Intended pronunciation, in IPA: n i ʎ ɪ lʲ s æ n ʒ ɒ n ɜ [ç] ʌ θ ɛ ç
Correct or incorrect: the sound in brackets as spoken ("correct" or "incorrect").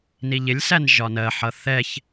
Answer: incorrect